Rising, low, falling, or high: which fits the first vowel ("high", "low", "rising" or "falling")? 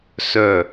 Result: falling